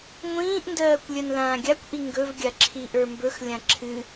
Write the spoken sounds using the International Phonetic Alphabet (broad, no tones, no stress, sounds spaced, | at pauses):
ŋʷ ĩː ʔ n d ɜː kʷ lʲ ɜ n l ãː ɡʲ a kʷ ʔ i ŋ ɡ ɵ v ɡʲ a ǁʰ i ʔ ə˞ m b ɵ x lʲ ã ǁʰ ɨ